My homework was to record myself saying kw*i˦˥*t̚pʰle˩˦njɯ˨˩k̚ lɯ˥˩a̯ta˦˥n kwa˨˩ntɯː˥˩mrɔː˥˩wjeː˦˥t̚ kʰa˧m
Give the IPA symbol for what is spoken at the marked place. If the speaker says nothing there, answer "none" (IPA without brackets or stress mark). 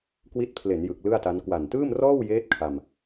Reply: i˦˥